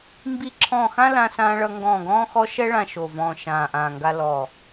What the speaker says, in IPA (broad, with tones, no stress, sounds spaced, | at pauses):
m b i˦˨ ǁʰ ɔ̃ː˦˨ x ã˥ l ã˥ s ãː˥ ɭ ʌ˥ ŋ ɡ ɔ̃ː˦˨ ɡ ɔ̃ː˥ x ɔ˥ ʃ ɛ˥ ɭ ã˦˨ ʃ o˦˨ v ɔ̃ː˦˨ ʃ ãː˦˨ ʔ ãː˦˨ ŋ ɡ a˥ l ɔː˦˨